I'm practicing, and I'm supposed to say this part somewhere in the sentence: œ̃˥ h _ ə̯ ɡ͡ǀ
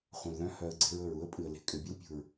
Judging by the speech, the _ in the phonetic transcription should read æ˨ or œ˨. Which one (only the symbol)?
œ˨